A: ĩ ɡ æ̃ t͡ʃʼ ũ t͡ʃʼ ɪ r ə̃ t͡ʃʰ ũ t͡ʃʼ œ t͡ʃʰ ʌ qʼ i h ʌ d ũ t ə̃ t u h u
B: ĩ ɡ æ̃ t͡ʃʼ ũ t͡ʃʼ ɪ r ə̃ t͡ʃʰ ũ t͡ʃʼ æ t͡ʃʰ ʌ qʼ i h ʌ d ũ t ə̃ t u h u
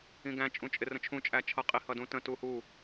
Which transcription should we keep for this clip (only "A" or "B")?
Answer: B